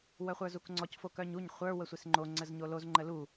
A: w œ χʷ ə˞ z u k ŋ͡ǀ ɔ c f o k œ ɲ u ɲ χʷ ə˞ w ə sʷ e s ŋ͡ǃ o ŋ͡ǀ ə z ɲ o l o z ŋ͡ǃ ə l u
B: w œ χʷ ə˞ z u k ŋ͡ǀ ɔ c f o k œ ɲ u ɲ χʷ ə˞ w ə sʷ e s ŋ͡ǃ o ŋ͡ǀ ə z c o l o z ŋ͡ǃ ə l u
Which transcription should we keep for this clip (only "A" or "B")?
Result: A